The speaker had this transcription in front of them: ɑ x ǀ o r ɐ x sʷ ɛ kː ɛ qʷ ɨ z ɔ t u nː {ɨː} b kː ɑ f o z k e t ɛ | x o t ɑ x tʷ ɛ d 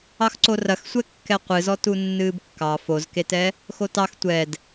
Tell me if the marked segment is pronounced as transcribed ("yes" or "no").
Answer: yes